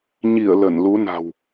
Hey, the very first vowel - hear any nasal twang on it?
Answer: no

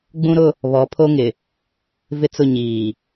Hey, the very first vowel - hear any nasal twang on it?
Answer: yes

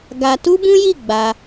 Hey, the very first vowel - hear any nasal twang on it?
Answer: no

